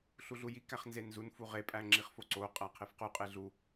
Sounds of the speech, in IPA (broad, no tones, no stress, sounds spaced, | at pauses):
ɬ u ɮ u j i k æ χ n z e n z u n f u ʁ e pʼ æ ŋ͡ǁ i χ f o ǀ o qʼ æ qʰ e f q u qʼ e ɮ u